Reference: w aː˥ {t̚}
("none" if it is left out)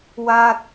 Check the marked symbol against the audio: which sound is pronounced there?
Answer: t̚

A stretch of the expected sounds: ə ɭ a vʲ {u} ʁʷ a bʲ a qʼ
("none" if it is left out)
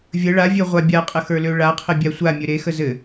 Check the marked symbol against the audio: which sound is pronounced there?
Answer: ø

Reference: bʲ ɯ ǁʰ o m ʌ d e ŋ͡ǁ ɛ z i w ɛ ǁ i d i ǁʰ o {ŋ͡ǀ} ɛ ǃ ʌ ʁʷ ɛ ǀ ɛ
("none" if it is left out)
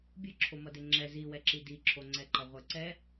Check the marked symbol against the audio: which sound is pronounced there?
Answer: ŋ͡ǀ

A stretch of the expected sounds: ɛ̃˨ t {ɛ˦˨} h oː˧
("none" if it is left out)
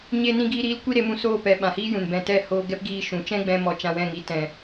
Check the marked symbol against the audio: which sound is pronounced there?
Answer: ɛ˦˨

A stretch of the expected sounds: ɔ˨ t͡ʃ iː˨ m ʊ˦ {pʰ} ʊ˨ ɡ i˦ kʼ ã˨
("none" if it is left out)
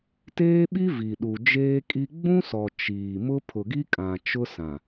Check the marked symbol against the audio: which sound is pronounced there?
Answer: pʰ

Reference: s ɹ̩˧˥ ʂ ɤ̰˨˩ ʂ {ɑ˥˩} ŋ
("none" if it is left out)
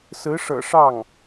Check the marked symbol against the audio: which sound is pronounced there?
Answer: ɑ˥˩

